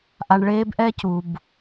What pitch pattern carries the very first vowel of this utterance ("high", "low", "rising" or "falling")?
low